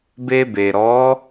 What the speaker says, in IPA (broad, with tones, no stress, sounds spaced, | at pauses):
b e˧ b e˨ ɾ ɔ˨˦